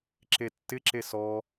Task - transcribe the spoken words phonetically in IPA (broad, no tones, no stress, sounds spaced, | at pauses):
ǁ e tː ɪ ǁ e s ɔ